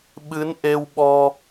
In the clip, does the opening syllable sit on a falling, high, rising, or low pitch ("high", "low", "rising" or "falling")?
rising